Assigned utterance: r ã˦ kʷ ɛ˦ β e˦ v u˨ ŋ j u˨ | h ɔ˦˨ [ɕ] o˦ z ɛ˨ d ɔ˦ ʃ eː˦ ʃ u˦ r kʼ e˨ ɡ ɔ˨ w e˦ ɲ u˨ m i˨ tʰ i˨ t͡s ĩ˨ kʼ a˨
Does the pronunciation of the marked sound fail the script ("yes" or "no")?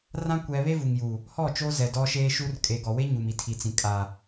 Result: yes